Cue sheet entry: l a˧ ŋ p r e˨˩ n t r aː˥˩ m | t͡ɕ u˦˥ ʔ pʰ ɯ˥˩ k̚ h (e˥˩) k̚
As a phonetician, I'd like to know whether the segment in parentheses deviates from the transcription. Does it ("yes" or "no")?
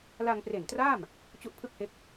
yes